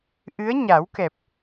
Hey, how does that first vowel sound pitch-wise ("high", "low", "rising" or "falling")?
rising